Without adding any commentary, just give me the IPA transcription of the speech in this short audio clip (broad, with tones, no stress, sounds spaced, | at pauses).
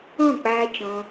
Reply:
ɔ̃˦˨ k͡p aː˧ t͡ʃ ɔ̃˧